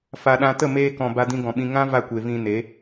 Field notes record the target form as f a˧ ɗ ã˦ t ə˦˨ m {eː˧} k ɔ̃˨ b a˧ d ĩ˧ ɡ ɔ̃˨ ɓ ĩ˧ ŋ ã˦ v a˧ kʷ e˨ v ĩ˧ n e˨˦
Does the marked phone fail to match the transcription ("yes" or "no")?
no